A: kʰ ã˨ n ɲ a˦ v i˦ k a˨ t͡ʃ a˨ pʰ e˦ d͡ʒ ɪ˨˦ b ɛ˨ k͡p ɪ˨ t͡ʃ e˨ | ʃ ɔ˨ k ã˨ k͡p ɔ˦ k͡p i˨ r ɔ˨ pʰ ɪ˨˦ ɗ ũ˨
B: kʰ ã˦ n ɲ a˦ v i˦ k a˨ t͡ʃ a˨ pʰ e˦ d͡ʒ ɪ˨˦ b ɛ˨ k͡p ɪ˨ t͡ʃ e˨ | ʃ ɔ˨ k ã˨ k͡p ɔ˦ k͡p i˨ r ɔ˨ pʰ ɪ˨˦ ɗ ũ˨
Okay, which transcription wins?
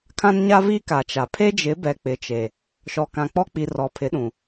B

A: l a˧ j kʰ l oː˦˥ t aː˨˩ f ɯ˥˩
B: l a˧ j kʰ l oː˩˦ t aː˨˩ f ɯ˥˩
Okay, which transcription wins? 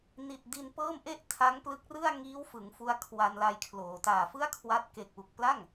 B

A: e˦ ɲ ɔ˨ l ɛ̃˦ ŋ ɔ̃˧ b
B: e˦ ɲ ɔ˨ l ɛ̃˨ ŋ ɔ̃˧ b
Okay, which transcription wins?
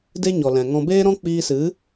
B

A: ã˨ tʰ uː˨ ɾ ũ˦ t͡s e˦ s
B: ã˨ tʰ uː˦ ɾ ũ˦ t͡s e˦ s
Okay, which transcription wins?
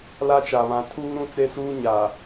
B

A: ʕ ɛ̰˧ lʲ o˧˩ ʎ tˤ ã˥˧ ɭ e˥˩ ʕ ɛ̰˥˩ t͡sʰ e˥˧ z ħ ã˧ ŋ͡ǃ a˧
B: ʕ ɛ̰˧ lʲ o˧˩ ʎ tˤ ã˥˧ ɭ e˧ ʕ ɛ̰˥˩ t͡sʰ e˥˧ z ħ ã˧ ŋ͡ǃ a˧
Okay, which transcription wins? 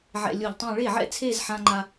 A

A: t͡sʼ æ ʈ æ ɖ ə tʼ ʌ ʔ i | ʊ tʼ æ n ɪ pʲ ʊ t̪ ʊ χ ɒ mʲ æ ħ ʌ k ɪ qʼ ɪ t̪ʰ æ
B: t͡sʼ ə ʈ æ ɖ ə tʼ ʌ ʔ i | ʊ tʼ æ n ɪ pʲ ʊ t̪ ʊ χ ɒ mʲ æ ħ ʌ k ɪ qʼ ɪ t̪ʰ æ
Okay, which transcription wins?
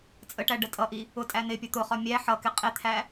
B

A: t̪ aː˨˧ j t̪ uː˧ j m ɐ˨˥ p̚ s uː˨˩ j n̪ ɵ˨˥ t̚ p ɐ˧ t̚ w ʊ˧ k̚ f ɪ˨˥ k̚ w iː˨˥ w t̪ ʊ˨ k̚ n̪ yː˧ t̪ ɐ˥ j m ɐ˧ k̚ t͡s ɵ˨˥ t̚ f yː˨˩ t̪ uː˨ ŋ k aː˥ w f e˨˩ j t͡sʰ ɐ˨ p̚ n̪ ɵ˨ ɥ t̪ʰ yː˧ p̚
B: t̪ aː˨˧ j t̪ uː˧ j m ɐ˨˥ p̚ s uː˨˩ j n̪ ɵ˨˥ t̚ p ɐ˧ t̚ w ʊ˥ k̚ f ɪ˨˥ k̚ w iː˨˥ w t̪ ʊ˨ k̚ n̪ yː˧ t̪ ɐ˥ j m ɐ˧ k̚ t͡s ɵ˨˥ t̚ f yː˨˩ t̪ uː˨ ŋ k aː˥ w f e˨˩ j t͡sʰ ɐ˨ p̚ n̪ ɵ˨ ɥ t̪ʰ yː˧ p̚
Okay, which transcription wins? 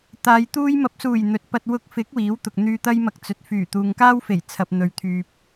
A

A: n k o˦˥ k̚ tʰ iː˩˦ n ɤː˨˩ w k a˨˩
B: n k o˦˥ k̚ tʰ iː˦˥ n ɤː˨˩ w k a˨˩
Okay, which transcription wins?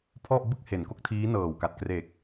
B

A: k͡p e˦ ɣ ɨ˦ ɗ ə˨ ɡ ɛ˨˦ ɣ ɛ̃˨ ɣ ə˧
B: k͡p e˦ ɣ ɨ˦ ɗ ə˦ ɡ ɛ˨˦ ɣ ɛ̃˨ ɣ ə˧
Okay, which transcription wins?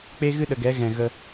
A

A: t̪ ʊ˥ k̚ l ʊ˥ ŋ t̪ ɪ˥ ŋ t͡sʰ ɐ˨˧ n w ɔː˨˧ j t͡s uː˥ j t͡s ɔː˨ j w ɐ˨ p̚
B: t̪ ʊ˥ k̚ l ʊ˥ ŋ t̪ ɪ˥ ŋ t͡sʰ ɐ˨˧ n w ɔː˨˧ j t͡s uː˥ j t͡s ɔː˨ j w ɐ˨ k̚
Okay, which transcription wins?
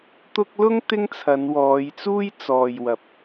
A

